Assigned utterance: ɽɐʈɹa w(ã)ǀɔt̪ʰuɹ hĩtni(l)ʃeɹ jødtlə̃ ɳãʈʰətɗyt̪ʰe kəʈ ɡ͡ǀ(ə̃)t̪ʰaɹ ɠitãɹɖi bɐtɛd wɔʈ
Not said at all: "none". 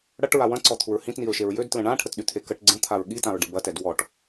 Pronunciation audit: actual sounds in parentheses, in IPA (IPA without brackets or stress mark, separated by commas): ɐ̃, ɹ, ə̃